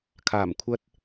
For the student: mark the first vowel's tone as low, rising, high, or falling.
low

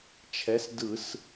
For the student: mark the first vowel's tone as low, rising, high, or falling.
rising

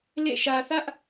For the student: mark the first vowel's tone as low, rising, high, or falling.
falling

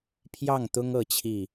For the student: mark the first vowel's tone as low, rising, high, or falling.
falling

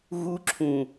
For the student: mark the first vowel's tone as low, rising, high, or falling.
high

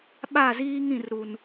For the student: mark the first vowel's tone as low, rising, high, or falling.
falling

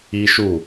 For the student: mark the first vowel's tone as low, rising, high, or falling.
high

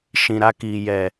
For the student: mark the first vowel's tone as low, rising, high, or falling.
low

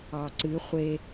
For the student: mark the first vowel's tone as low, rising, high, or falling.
low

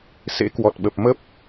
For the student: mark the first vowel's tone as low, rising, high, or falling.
rising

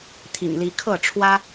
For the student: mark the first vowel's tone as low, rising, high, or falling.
low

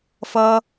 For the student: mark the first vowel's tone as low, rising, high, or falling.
high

